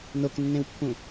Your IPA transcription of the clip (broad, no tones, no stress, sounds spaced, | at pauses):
n o k nː ẽ w pː ũ